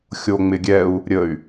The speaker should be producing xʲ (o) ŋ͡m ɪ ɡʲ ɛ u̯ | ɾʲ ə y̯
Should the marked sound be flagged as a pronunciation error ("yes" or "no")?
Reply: no